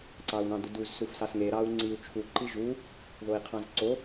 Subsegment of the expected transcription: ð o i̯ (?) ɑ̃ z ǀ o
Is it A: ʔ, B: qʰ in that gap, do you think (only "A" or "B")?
B